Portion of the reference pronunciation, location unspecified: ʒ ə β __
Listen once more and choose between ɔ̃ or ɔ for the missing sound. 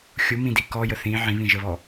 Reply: ɔ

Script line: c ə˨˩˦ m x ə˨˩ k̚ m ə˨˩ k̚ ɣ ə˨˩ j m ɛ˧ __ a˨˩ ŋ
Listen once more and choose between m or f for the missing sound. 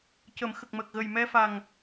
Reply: f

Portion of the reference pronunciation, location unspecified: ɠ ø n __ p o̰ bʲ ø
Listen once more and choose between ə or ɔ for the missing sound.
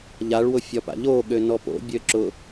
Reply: ɔ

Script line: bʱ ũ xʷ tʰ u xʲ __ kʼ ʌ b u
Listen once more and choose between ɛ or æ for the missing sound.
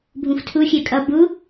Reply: ɛ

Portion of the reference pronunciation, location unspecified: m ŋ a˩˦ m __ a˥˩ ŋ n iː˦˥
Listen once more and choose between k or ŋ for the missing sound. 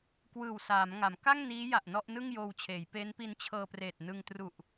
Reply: k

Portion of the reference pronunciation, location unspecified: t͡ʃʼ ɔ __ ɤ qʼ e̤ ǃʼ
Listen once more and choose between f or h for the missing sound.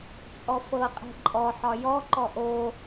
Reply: f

